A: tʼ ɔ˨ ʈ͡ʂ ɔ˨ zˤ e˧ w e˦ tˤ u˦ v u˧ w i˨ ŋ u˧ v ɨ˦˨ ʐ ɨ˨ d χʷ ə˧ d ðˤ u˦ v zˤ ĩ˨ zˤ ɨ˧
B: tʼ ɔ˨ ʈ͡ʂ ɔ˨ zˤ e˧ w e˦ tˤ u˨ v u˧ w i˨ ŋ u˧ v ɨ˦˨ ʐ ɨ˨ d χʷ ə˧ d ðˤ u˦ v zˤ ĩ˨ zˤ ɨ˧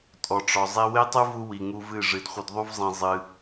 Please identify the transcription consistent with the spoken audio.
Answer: A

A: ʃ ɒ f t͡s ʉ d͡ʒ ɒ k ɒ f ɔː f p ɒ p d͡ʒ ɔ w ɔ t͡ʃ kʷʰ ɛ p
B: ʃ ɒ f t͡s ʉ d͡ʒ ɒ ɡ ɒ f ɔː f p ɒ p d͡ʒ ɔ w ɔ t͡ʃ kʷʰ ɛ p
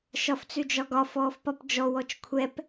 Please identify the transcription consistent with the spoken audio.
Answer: B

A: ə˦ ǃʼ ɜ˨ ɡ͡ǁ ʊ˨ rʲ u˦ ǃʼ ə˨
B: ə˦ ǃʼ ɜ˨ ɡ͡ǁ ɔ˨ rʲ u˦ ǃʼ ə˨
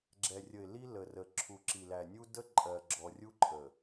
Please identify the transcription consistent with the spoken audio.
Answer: B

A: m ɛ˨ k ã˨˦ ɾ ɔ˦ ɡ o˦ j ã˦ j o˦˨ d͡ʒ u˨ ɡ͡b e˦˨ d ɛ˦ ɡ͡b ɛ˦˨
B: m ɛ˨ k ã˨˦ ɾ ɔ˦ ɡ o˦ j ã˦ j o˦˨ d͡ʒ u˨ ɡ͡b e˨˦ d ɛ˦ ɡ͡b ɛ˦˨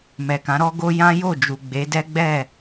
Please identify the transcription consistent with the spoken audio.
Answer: B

